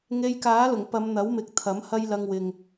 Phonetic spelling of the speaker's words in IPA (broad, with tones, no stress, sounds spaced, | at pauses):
ŋ e˧ j k aː˨˥ l ʊ˨˩ ŋ p ɐ˨˧ m n̪ ɐ˨˥ w m ɪ˨ k̚ t̪ʰ ɐ˨˥ m h ɐ˥ j l ɐ˧ ŋ w ɪ˨ ŋ